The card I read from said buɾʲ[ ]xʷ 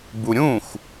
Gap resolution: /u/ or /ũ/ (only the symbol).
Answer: ũ